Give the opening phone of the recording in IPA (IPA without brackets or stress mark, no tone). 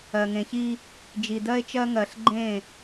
ɜ